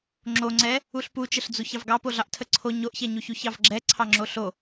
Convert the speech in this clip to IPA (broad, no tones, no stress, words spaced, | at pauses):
ŋ͡ǁoŋ͡ǀɛ | uɬput͡ʃəɬd͡zuç ɑvɡɑpoɮɑʔ tʰəǀʰo ɲoʔçɛɲuçu çɑvɡ͡ǁɛ ǀʰɑŋ͡ǁoɬo